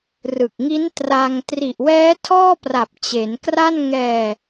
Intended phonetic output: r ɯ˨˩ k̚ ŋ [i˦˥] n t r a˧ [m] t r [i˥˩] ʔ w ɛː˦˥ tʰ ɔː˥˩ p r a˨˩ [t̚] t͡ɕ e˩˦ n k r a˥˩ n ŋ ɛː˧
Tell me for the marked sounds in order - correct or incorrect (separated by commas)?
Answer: correct, incorrect, incorrect, incorrect